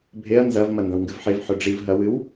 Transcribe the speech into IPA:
bʱeɐ̯ nzɐv mɐndɐ̃wŋɡɨvħev ħɵɖ͡ʐiv ɦɐwɨw

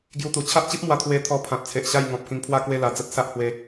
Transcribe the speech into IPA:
ɡju˧t̪u˨˩ t͡ɕʰa˦ʔt͡ɕi˦p̚mwa˧ t̪ʰwe˧t̪ʰɔ˧pʰã˨t̚t͡sʰe˨ʔ ɕa˥˧j ŋɔ̃˨p̚kĩ˧ŋpʰwa˥˧kwe˥˧ la˧d͡zə˦t̚ sa˦ʔhwe˧

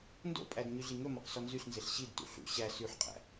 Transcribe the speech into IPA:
ndo̰pʼæd ɲyɮiŋɵmɔq sɔnzyɬnzeɬ ɕidtṵ ɬṵ ɕæ syħqʼæ̰

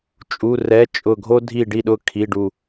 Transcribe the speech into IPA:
t͡ʃʼu˧˥˧ rɛ˧˥˧ t͡ʃʼʊ˦˨ɡʱo˥ dʱi˦˨ɖi˦˨ɗʊ˦˨ kʰi˧˥˧ɖu˦˨

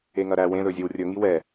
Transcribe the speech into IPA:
eŋɐɾæ wẽ ðɵzʲɵwrʲɵ ŋiwɛ

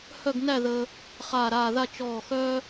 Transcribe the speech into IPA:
hœ˥˧ɡnæ˥˧ ðə˧ | χaː˧˩ɾaː˧˩ða˥˧ t͡ʃɔː˧˩xœ˥

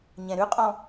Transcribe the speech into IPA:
ɲɛ̃ɾʉqʼɔ̃

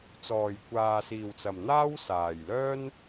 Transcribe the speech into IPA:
t͡sɔː˨˩jkʷaː˨siː˨˩wt͡sɐ˨˩m n̪aː˥wsaː˨˩jlœː˥n

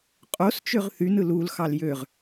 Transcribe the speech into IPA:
qʼost͡ʃøʁ θynɯ lulxɑl jøʁ

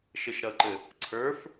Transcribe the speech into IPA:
ʃɘʃɾʌǃɘ | ǀʰə˞f

